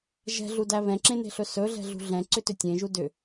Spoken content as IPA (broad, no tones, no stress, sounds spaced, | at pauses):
ʒ ɛ̤ ɮ u d æ β ɛ̃ ǁ ẽ n e̤ ɬ ɵ s ɵ ɮ ɛ̤ ɮ ṳ ɮ ɛ̃ ǀ ʏ t ʏ tʲ ẽ ʒ u d ʏ